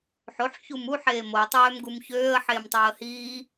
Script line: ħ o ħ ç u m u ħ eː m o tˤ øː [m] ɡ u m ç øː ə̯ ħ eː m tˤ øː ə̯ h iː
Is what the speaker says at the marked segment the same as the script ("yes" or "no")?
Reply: yes